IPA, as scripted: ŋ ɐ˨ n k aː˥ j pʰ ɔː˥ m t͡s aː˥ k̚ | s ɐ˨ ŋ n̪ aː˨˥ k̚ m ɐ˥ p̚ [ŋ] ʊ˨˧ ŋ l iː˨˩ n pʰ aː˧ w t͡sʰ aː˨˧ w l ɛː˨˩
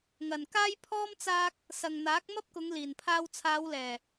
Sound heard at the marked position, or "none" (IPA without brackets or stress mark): k